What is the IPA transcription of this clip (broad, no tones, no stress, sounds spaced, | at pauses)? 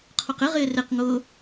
qʰ o q ɪ ʁ ɪː r ɪ q ŋ ʊː